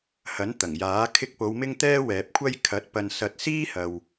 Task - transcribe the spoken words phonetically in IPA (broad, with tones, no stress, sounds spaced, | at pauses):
h ɐ˨˥ n t̪ ɐ˨˩ ŋ j aː˨˥ kʰ ɪ˧ k̚ p o˨˧ w m ɪ˥ ŋ t̪ ɛː˥ w ɛː˨ p̚ kʷʰ ɐ˥ j kʰ ɐ˨˥ t̚ p ɐ˨ n s ɐ˨ t̚ s iː˥ h ɐ˨ w